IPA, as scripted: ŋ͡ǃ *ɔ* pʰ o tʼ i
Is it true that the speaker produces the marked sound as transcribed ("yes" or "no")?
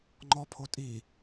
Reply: yes